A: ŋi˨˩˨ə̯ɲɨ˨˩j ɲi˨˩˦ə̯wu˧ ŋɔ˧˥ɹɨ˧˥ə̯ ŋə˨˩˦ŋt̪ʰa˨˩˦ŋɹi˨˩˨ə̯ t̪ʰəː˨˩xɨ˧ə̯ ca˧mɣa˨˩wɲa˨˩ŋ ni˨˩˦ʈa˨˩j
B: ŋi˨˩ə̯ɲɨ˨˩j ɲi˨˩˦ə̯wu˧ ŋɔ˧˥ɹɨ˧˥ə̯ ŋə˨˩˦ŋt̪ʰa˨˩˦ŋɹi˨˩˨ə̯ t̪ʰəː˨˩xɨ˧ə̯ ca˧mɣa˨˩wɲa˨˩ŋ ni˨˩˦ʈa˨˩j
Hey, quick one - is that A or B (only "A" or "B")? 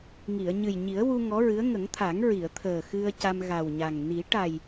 A